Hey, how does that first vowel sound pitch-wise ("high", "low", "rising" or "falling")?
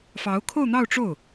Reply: rising